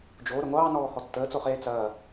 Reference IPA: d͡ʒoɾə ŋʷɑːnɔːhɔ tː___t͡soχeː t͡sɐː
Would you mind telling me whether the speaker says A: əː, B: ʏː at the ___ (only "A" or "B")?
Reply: A